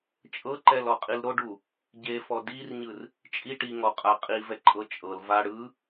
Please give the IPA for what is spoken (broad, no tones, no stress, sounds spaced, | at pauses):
t͡ʃʼ ɤ ǃ ɛ l ɔ qʼ i l ɾ o ɖ u | ɟ e f ɔ d i r ɲ ɯ r | t͡ʃʼ i ʈ i ŋ ɔ qʼ a qʼ i v ɛ ǃʼ ɤ t͡ʃʼ ɤ l v a ɽ ɯ